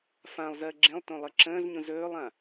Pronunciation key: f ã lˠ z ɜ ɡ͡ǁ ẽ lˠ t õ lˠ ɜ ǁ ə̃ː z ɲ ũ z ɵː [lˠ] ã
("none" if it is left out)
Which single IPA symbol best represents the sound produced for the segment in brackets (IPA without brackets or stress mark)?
lˠ